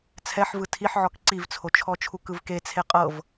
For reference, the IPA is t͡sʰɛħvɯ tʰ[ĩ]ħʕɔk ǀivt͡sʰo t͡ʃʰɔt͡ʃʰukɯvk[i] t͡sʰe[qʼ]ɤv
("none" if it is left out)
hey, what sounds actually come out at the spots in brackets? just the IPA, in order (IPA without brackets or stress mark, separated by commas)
i, e, qʼ